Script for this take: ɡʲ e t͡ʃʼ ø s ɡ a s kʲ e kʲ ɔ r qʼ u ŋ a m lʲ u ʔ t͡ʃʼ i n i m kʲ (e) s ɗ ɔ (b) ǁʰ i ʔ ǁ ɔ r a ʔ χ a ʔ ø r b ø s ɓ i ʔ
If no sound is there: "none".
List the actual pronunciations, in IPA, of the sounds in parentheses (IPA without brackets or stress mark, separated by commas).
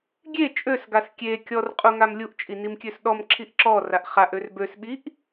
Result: ø, m